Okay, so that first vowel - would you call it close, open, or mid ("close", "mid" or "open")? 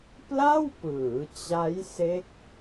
open